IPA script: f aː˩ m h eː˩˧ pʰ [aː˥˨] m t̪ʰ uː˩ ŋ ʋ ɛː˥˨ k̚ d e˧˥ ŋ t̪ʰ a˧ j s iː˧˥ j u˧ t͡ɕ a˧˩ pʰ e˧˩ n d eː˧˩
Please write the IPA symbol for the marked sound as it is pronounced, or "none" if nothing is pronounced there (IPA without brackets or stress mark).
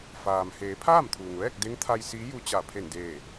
aː˥˨